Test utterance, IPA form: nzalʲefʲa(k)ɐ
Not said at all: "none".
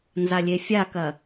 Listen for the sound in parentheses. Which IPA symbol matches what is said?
k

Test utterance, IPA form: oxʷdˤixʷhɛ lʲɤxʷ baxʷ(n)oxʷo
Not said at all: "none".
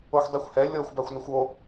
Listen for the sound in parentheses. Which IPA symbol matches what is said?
n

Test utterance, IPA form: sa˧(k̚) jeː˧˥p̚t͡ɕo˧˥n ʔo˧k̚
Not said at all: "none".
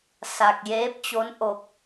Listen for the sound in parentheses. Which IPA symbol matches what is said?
k̚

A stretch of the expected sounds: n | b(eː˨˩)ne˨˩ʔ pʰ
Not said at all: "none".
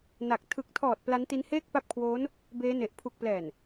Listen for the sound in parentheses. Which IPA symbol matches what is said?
eː˦˥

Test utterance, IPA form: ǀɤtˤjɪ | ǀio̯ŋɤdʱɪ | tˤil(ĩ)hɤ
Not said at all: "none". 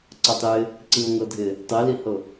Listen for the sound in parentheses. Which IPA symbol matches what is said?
i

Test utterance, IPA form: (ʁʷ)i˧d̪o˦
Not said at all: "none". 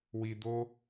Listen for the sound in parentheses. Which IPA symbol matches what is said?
w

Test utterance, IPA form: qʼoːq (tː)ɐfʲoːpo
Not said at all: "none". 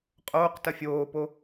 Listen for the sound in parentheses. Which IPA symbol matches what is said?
t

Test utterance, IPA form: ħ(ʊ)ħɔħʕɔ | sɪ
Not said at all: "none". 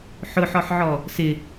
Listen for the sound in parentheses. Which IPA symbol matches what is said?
ʊ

